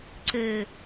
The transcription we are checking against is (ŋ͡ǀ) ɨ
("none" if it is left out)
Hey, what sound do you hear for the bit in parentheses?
ǀ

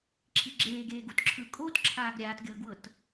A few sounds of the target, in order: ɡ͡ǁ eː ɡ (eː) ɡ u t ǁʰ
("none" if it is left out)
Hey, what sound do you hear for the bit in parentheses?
eː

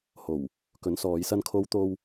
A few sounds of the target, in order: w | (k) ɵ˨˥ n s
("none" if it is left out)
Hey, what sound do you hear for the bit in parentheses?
k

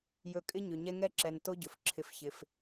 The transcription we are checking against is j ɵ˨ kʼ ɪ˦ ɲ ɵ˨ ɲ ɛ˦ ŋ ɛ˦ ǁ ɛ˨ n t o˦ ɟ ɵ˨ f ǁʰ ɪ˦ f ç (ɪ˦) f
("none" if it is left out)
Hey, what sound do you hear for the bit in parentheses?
ɪ˦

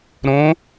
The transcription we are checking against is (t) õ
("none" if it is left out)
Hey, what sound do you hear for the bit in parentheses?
ɾ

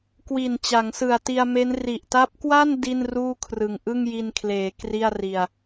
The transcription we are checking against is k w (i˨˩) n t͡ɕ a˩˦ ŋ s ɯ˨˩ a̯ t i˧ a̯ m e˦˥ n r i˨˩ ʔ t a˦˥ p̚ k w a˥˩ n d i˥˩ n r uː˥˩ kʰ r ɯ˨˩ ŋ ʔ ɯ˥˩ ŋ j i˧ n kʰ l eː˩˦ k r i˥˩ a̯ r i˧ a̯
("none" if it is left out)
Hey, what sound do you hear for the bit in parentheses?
i˨˩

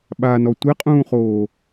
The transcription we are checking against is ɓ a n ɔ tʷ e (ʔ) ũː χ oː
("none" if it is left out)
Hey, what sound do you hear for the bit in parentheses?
qʼ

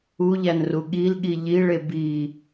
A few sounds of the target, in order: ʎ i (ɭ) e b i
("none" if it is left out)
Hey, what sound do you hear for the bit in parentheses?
ɭ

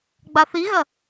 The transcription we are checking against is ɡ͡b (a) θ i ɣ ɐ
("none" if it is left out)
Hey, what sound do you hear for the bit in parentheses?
a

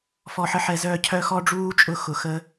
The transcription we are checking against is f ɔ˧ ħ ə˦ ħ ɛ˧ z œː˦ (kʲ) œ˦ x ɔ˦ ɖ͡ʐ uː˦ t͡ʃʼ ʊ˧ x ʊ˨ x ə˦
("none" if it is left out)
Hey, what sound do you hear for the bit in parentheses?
cʰ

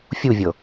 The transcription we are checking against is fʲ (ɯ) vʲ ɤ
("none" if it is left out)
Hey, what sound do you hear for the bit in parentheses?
u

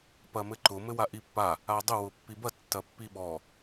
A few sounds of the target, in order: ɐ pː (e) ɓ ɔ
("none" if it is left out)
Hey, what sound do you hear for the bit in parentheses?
i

